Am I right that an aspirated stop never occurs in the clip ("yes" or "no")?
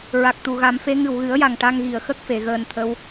no